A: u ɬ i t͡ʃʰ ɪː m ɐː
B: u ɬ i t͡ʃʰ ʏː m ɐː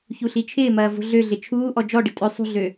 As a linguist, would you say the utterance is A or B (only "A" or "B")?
A